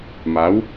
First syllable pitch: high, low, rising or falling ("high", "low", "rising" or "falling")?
rising